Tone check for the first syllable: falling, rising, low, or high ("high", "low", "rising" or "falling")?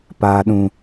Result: low